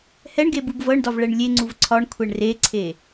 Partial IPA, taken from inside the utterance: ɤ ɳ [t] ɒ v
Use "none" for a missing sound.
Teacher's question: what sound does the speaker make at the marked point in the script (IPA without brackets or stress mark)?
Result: d